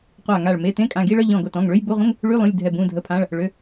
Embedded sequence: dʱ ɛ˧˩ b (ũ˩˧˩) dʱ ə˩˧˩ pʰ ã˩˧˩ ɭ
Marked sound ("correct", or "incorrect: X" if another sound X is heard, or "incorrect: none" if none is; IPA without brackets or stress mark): correct